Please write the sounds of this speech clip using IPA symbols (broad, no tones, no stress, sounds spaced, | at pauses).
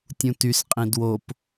tʲ ũ t y s qʼ ĩ d w o p